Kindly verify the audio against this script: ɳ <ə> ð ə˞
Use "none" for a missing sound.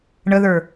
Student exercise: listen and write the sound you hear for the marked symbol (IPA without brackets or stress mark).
ə